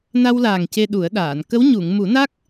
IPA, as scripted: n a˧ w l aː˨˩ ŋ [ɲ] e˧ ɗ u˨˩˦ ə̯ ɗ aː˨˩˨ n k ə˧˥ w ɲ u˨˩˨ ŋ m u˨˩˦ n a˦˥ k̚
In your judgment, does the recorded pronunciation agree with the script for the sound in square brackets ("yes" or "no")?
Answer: no